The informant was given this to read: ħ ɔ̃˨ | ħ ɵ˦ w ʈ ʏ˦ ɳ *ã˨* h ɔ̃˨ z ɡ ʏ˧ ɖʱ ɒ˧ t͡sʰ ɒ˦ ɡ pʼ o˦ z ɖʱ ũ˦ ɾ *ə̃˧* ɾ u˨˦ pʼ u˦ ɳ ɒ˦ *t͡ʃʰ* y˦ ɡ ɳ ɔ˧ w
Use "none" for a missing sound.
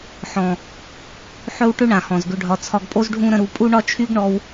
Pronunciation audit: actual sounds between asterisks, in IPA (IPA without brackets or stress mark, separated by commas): ã˨, ə̃˧, t͡ʃʰ